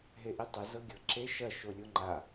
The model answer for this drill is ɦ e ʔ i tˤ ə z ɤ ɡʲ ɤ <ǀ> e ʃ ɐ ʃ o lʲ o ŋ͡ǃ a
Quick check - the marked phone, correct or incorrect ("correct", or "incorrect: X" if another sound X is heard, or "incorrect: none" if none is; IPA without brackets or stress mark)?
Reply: incorrect: ǁ